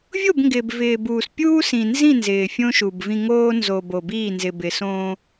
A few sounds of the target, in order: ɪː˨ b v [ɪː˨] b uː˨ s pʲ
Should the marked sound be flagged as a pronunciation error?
no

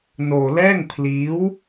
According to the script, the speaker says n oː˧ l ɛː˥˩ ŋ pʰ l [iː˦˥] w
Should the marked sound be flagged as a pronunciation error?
no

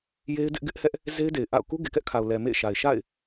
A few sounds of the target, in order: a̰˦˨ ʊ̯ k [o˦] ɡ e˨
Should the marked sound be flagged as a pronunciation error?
yes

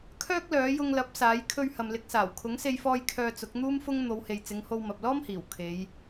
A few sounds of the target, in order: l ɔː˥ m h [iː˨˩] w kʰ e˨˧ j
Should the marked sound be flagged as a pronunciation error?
no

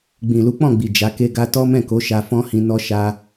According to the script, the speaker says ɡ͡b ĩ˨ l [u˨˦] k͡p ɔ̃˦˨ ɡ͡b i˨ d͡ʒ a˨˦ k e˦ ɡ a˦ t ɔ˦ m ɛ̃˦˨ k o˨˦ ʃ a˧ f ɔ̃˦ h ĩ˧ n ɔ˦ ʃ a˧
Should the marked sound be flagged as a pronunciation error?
no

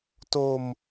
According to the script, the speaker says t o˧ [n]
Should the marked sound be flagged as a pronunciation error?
yes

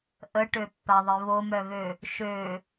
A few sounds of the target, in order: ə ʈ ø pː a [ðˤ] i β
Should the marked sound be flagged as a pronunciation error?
no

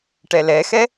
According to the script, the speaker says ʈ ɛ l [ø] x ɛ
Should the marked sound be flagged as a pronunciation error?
yes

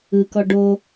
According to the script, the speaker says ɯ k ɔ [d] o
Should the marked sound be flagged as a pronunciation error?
yes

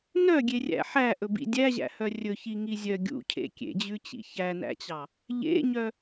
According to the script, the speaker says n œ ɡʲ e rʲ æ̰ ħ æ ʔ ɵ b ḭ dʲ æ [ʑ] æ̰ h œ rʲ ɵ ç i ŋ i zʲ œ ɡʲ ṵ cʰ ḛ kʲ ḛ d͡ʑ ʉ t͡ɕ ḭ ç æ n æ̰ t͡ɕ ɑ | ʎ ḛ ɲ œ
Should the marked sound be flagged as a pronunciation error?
no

